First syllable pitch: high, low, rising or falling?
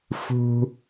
high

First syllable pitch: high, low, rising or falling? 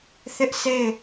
high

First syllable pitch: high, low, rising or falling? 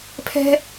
high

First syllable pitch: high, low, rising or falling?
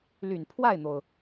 low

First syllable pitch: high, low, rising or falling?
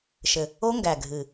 low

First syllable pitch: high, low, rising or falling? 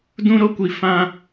high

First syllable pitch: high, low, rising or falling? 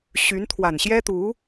rising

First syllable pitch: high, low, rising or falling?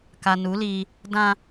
low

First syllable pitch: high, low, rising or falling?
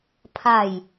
falling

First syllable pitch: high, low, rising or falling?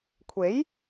rising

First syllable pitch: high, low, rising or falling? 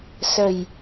low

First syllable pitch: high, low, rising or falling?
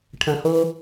low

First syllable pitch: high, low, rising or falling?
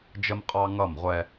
high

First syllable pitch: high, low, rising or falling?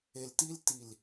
low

